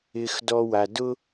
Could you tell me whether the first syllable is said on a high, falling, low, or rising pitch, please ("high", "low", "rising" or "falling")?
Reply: low